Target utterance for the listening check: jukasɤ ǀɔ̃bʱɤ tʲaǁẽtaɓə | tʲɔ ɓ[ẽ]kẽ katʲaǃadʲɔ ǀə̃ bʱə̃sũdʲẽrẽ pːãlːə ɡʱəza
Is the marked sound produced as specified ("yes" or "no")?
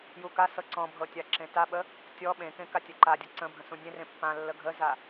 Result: yes